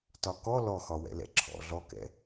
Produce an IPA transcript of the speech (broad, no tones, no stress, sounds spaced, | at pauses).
t ɒ k ɔ l ɔ x ɒ w ɛ̰ l ɛ̰ ǁʰ ɔ̰ ɮ ɔ k ɛ̰